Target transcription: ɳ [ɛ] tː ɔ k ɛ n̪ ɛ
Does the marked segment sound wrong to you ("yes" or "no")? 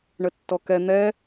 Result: yes